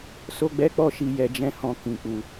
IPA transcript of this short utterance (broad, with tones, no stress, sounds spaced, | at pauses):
s o˦ ɡ͡b ɛ˦ k͡p ɔ˦ ʃ i˧ j ɛ˧ d͡ʒ ɛ̃˦ h ɔ̃˧ k ĩ˨ k͡p u˨